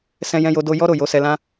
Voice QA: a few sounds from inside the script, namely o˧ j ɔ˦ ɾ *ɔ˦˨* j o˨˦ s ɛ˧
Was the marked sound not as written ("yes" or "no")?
yes